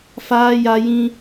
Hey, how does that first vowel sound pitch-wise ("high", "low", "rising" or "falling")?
high